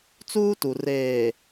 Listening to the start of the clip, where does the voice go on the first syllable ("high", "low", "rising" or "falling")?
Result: high